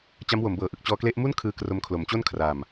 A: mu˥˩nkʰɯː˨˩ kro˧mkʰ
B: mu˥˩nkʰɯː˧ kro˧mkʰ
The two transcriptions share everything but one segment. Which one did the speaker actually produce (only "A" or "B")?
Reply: B